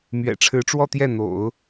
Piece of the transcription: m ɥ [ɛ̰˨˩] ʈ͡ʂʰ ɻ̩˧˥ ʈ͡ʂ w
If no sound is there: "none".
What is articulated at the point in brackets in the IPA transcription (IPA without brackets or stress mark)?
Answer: ɛ̰˨˩